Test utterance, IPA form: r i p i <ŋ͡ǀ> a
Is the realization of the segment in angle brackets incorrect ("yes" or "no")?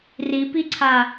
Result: yes